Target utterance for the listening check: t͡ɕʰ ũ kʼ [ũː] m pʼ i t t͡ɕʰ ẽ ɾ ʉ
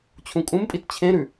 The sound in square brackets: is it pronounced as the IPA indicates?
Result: no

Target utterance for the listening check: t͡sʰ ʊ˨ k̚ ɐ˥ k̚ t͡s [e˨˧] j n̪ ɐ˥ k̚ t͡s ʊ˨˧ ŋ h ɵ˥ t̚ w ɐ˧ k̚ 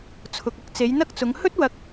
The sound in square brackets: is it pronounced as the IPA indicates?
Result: yes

